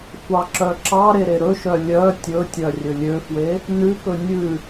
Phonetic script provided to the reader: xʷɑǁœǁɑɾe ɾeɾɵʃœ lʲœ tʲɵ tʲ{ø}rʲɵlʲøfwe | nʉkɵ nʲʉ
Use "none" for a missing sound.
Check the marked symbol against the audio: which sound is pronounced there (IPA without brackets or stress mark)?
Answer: œ